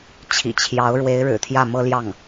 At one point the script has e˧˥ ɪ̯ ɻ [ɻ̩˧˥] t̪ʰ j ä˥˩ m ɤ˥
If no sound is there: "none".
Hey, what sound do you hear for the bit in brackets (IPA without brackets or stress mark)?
ɻ̩˨˩